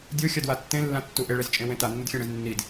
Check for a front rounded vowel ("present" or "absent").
absent